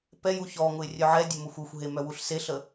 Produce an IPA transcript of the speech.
p ɛ j u ç ɔ ŋ ʊ ɪ̯ rʲ œ ʕ ɛ dʲ ə m ʊ xʷ ʊ xʷ ɦ e m œ w u ɬ s e ɬ ə

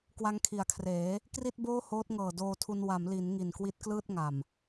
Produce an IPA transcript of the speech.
k w a˦˥ ŋ kʰ i˨˩ a̯ kʰ r eː˩˦ | k r i˥˩ t̚ b oː˥˩ h oː˦˥ t̚ ŋ ɤː˨˩ d oː˧ tʰ u˧ n w a˩˦ m l i˩˦ n ŋ i˨˩ n k w i˦˥ t̚ k l ɯː˥˩ t̚ ŋ a˨˩ m

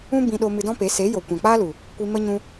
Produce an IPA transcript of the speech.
ũ˦ b ĩ˧ ɗ o˧ m ɨ˧ d ɔ̃˦ p e˨˦ s e˨˦ j o˨ kʷ ã˨ k͡p aː˦ l u˨ | kʷ i˧ m ə˦ ɲ ũ˧

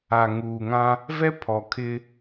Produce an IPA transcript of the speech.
a˨ ŋ uː˨ ŋ ã˦ | v ɛ˦ pʰ ɔ˨ kʰ ɪ˦

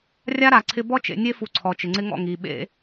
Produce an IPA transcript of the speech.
rʲ a˦ ɾ a˨ ǀʰ ɪ˦ b ɔ˦ t͡ʃ ḛ˨ nʲ e˦ f u˨ ǀʰ ɔ˨ t͡ʃ ɪ˨ ŋ͡ǀ ɪ˦ ŋ ɔ̰˦˨ ŋ i˨ ɓ ḛ˦

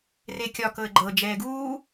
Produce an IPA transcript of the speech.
r e kʲ ɒ k ɤ ə̯ ɡ͡ǃ ɤ d͡ʒ ɛː ɡ uː

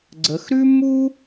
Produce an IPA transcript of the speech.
ɡ͡ǀ ə˩˧ x ɾ ʉ˥ m u˥

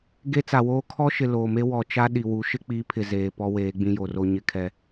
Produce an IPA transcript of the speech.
ɡ e˦ t͡s a˨ w oː˦ kʰ ɔ˦ ʃ ɪ˨ l oː˨ m e˦ w ɔ˨ t͡ʃ a˦ ɗ i˨ w u˨˦ ʃ ɪ˦ k͡p i˨˦ pʰ ɪ˨ z eː˨ p ɔ˦ w eː˨˦ ɡ͡b ĩ˦ j o˨ r o˦ ɲ ɪ˦ kʰ ɛ˦

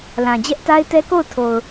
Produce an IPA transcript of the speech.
l ã˨ d͡ʑ ɛ˦ ʔ t a˦ ɪ̯ t ɛ˦ k o˦˨ ʊ̯ tʰ o˨ ʊ̯

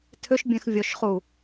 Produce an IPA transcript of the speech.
tʰ ʏ ʃ bʲ ɛ̃ x vʲ ɔ ʃ χ u

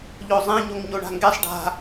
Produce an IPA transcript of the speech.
ʎ o zˤ ẽ ɲ o ŋ ɲ o ɳ a̤ ŋ ɡ ɛ sˤ ɖ a̤

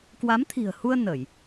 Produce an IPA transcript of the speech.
k w a˨˦ m t̪ʰ i̤˨˩ ə̯ h u˧ ə̯ n ə˧˩˨ j

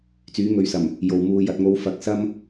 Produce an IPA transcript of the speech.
t͡s yː˨˥ ŋ ɵ˨˥ ɥ s ɐ˨˩ m | j o˨ w m uː˧ j ɐ˨ t̚ ŋ o˨˧ w f ɐ˨ k̚ s ɐ˥ m

